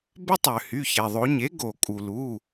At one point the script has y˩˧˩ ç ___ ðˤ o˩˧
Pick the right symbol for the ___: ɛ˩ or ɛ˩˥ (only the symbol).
ɛ˩